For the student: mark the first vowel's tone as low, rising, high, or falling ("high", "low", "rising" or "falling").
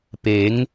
rising